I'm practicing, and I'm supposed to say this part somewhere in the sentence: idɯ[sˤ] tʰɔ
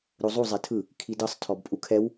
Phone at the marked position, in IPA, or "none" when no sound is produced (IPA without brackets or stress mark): sˤ